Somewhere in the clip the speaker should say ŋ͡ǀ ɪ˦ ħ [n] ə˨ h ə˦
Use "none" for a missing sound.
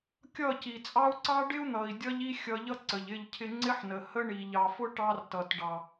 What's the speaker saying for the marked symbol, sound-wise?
n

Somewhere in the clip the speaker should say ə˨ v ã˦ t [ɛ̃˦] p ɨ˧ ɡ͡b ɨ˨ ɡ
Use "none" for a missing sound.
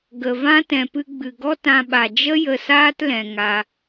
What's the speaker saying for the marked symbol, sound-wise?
ɛ̃˨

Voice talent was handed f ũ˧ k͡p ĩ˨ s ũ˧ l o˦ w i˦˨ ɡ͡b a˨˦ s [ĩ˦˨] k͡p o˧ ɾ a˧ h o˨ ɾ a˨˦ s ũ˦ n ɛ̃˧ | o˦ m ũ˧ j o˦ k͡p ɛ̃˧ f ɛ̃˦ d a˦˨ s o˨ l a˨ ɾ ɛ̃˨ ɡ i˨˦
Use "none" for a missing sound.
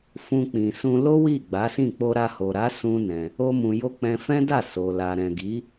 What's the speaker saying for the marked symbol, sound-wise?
ĩ˦˨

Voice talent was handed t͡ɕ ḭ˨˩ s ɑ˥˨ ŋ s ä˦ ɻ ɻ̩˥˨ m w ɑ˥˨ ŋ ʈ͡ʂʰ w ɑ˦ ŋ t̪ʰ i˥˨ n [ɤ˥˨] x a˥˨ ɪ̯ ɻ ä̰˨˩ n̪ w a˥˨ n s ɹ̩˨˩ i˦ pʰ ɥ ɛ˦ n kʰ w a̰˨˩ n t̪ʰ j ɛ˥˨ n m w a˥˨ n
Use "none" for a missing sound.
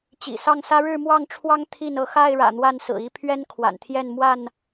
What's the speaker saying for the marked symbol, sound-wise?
ɤ˥˨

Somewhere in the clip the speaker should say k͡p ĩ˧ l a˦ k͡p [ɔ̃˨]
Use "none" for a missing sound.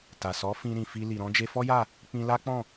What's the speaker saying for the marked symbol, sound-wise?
ɔ̃˦˨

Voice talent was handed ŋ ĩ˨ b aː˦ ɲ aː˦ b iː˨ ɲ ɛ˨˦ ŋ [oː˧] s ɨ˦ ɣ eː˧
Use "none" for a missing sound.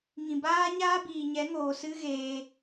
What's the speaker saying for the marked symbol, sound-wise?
oː˨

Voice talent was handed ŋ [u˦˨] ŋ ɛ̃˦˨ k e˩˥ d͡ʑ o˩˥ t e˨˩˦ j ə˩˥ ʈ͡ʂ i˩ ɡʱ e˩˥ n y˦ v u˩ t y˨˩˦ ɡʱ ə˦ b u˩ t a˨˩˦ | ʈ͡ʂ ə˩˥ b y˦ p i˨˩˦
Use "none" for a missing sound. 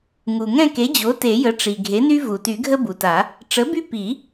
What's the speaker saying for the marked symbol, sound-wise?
u˩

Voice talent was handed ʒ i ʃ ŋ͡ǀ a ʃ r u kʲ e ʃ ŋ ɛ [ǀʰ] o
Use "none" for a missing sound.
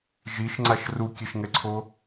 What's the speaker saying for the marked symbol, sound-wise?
ǀʰ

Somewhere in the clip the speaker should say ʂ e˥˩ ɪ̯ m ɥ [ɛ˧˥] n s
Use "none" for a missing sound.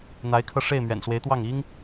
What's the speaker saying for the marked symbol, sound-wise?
ɛ̰˨˩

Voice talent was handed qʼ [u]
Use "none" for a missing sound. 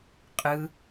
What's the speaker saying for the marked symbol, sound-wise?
ɯ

